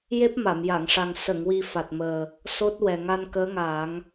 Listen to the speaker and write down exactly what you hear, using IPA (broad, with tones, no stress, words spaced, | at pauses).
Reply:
je˦˥p̚ma˨˩˨mja˨˩˨ŋʂa˨˩ŋ sə˨˩˨ŋwi˨˩ fa˨˩t̚məː˨˩ | so˦˥t̚wɛ˨˩ ŋa˧nkəː˧˥ŋaː˨˩˦ŋ